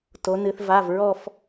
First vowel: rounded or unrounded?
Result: rounded